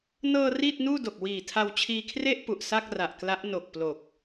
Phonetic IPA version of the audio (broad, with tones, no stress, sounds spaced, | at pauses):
n ɤː˧ r iː˥˩ t̚ n uː˥˩ d o˨˩ k̚ w iː˨˩ tʰ a˧ w t͡ɕʰ iː˧ kʰ r e˥˩ ʔ p u˨˩ ʔ s a˥˩ k̚ r a˨˩ ʔ k l a˦˥ ʔ n o˨˩ k̚ p l o˨˩ k̚